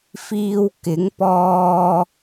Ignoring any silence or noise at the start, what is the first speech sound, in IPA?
f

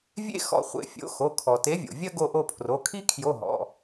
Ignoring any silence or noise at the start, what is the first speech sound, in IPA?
vʲ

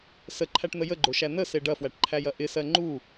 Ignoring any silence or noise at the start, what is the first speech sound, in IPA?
s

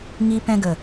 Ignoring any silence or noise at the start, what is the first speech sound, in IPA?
ŋ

